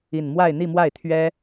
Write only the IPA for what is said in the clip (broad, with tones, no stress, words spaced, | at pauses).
i˥˧n mwa˥˧ɪ̯ n̪i˥˧mwa˥˩ɪ̯ t̪ʰɥɛ˥